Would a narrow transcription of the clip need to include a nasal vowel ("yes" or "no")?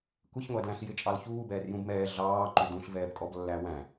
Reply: yes